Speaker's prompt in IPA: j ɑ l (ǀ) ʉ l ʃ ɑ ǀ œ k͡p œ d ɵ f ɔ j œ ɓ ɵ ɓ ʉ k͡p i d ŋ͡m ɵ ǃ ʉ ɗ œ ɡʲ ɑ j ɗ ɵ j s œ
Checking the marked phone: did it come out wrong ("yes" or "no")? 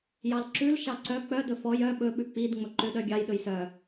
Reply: yes